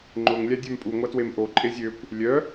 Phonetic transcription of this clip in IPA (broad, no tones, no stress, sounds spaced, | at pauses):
ŋ͡ǃ ʊ ŋ lʲ a dʲ a m pʼ u ŋʷ a t w e m ʔ o ǃʼ e zʲ ø kʷ | lʲ œ